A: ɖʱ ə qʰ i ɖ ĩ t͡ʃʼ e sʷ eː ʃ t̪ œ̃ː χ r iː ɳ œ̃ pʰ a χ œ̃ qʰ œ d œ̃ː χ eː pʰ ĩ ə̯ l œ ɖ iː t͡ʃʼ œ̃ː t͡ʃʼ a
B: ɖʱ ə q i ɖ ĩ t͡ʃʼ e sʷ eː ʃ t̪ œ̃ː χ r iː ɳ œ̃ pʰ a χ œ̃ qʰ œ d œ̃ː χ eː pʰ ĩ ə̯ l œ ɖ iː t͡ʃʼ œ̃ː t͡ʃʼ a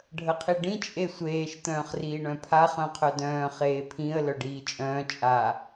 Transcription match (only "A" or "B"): A